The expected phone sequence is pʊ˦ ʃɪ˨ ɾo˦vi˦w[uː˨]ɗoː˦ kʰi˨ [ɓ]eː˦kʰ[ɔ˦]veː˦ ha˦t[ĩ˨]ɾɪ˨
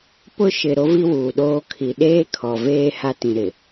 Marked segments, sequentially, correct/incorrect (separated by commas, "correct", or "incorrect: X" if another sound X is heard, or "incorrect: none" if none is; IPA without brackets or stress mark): correct, incorrect: ɗ, incorrect: ɔ˨, correct